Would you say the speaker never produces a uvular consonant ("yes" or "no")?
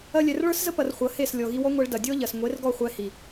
no